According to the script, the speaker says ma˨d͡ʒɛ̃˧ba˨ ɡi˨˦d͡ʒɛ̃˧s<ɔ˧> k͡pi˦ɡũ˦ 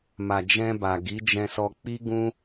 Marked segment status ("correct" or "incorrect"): correct